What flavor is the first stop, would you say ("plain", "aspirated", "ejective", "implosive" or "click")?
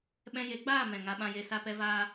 implosive